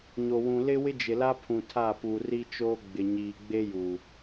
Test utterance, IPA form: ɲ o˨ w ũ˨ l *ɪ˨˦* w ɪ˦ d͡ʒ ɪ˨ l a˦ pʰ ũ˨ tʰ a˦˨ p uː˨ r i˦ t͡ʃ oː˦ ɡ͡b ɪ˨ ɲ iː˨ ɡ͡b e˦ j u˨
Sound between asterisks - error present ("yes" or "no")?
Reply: yes